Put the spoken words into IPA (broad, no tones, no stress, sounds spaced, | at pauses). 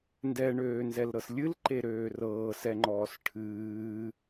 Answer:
n d ɛ ɳ øː n z ɛ l ɾ ɤ s lʲ ɨ l ǃ e ɾ øː r ɤː s ɛ ŋ͡ǃ ɔː s ʈʰ ɨː